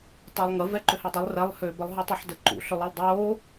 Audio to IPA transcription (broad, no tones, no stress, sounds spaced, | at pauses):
tˤ o lˠ ŋ ə v ɛ ǃ ʏ h i dˤ ʊ lˠ r ɛ lˠ h ʏː b ə lˠ ɦ u tˤ o ħ d ə ǃ ṵ ɬ ʏ lˠ i lˠ dˤ oː